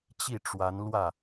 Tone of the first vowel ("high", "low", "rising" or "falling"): falling